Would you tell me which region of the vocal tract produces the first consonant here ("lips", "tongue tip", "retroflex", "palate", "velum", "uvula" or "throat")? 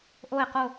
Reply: throat